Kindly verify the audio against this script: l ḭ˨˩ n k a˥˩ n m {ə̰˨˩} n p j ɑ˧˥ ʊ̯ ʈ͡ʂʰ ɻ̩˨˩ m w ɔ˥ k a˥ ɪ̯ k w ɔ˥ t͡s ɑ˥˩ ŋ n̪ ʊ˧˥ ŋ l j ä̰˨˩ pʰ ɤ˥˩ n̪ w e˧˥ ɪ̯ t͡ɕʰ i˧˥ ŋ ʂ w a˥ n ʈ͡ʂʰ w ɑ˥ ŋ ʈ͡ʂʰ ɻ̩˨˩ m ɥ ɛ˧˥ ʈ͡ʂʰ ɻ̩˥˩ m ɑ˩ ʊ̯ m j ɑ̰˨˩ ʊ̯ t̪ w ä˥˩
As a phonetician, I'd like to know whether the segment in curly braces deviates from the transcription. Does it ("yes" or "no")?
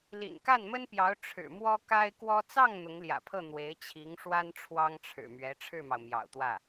yes